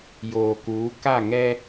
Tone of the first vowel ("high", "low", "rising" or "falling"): low